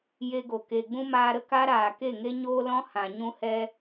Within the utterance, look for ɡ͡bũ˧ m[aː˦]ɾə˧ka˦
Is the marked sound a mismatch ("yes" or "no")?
yes